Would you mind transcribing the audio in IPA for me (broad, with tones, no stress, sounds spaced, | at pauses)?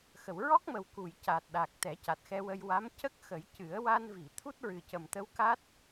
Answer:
x ə˨˩˨ w ɹ ɔ˦˥ k̚ m ə˨˩ w k u˨˩˨ j c a˨˩ t̚ ɗ a˨˩ k̚ t̪ ɛ˨˩˦ c a˨˩ t̚ x ɛ˧ w ə˧ j w a˧˥ m c ə˦˥ k̚ x ə˨˩˦ j c ɨ˨˩˦ ə̯ w a˧ n v i˨˩˨ t̪ʰ u˦˥ t̚ ɹ ɨ˨˩ c ə˨˩ m t̪ ə˧˥ w k a˦˥ t̚